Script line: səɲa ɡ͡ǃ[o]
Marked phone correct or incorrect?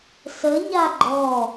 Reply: incorrect